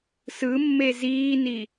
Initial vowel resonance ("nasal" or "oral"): oral